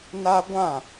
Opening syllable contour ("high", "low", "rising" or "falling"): high